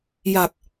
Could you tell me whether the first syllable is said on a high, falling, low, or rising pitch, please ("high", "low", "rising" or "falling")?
low